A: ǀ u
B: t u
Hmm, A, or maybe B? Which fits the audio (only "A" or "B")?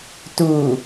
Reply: B